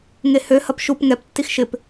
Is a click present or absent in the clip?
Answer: absent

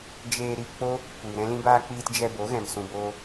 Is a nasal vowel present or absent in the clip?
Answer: present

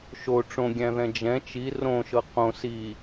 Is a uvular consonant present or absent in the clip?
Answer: present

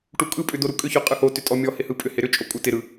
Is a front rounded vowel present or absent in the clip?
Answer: present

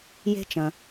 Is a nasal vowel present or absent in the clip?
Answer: present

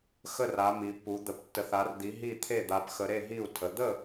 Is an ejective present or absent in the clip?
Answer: absent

